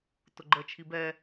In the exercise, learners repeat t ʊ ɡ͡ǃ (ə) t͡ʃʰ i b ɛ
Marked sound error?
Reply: no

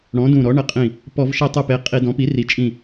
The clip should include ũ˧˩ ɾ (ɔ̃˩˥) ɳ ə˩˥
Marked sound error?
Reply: yes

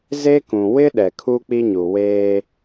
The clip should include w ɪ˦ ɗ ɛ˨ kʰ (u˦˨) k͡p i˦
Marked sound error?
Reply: yes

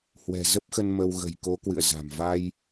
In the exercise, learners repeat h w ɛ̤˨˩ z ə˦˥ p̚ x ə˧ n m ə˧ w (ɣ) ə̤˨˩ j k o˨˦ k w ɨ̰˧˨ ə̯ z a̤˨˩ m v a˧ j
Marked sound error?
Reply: no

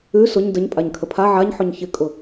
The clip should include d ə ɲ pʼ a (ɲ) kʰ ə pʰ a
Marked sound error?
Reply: no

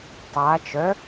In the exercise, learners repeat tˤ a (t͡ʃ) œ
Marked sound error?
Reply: no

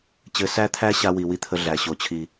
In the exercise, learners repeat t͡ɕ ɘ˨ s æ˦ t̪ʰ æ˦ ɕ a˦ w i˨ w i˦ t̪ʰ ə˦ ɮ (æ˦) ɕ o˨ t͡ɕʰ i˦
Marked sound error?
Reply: yes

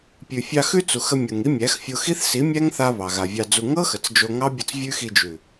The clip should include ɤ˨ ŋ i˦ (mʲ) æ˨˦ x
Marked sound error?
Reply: no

